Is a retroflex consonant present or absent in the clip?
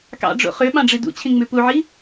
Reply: present